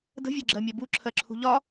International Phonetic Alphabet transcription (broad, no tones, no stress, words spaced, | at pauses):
də̤ vʲɜɡ͡ǁɜmʲɛbu ǁʰɜǁʰṳʎɒ